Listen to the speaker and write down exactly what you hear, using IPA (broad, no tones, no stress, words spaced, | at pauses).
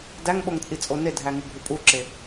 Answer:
dæŋɓoŋt͡sʼit͡sʼo nedʱæŋuɡʱu pʼuǁe